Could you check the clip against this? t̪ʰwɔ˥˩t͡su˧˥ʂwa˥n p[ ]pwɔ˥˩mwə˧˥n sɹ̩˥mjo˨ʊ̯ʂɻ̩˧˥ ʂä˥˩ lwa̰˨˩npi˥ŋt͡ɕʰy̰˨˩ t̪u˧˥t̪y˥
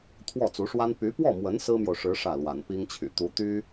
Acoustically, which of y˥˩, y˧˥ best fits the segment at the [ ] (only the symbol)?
y˧˥